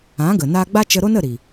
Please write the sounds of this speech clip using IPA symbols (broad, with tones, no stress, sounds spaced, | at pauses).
ã˨˦ ɡ ə˨ n a˦ ɡ͡b a˦ t͡ʃ ə˧ ɾ o˦ n ə˦˨ ɾ i˨